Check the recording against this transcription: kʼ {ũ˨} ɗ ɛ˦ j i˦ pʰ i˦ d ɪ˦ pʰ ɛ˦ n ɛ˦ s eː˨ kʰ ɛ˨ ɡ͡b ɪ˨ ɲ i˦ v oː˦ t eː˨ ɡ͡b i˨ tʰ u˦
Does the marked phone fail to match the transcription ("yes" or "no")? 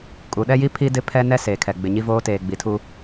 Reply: yes